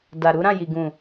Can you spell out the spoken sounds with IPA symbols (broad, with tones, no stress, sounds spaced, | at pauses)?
d a˨ ɾ u˨˦ ɾ ã˦˨ j i˨ ɡ ũ˨